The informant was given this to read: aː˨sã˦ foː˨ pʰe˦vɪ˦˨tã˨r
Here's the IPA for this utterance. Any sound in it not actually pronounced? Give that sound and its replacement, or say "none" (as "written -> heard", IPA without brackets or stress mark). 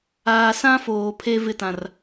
none